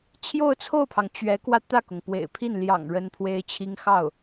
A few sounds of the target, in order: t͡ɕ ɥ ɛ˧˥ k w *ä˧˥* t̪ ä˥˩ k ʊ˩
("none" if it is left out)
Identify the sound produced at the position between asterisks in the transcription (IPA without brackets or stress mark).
ä˧